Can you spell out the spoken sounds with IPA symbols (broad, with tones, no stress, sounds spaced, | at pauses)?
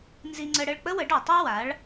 n z i˧ ŋ͡ǀ ə˧ ɽ ə˥˩ ɭ k͡p ə˥ w ə˩˥ ɖ ɔ˩ tˤ a˥ w a˩˥ ɭ